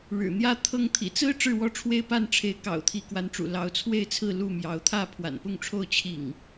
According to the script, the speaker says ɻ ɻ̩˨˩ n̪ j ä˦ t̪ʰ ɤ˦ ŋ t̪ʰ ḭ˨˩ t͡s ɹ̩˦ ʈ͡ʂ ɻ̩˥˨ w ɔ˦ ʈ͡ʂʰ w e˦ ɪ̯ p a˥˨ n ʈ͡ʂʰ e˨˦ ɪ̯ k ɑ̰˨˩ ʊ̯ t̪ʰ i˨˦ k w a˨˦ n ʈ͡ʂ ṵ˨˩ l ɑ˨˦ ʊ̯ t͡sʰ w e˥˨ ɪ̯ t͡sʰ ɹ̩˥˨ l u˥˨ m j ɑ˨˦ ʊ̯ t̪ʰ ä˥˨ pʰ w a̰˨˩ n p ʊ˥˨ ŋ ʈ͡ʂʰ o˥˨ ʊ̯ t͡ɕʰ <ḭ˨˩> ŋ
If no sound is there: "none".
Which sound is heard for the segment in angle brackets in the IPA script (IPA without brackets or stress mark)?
ḭ˨˩